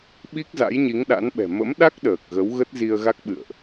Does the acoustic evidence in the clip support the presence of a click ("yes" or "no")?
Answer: no